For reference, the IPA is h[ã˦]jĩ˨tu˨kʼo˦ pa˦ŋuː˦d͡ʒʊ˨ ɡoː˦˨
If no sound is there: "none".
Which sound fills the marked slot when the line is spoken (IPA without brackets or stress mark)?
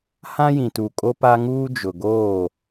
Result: ã˦